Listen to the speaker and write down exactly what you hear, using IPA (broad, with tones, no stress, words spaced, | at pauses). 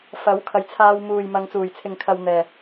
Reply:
fɐ˨˥w kʰɐ˨jt͡sʰaː˧w muː˨j mɐ˨˧ŋt͡suː˨˩jt͡sʰɪ˨ŋ kʰɐ˧wn̪ɛː˨